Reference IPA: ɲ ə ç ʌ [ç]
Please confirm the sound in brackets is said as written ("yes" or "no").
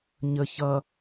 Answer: no